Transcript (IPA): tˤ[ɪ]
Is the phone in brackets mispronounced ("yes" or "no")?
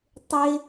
no